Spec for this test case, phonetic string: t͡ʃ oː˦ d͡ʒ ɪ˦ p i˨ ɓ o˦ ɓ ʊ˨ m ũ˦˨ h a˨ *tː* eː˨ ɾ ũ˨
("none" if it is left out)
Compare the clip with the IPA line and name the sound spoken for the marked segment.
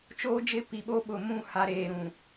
ɾ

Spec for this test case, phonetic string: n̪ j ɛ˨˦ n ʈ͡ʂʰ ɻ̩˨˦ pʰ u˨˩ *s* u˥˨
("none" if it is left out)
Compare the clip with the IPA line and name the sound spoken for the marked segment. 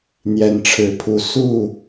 s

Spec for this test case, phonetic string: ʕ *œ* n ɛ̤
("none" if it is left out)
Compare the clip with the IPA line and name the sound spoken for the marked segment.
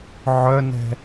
œ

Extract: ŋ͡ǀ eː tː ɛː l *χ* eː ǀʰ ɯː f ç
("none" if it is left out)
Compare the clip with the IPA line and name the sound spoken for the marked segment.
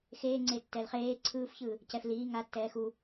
χ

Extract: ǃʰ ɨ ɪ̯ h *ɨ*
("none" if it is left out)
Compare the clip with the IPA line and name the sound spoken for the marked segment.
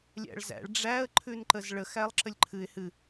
ɨ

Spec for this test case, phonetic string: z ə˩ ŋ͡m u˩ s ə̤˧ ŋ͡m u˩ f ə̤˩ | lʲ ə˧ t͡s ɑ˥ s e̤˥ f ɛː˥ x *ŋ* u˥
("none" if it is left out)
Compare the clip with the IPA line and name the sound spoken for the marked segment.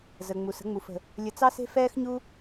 ɲ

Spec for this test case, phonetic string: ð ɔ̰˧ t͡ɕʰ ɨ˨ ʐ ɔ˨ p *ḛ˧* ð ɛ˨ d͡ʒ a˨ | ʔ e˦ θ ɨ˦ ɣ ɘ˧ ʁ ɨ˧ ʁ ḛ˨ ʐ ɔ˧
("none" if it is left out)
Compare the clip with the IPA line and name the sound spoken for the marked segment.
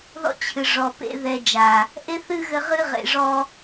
ḛ˧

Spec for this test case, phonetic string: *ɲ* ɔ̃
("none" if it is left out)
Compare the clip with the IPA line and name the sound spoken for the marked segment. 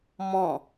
m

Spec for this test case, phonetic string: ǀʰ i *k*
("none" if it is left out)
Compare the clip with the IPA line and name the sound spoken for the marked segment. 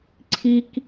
k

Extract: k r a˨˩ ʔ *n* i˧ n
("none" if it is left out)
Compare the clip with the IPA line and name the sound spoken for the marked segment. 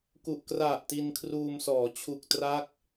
t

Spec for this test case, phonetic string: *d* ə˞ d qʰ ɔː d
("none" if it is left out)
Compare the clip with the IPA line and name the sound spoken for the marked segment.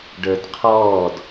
ɖ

